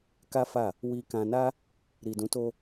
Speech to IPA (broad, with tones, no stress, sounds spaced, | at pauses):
k a˦ f a˦˨ | w i˧ k ã˧ n a˦ | ɾ i˨ d ũ˨˦ t o˧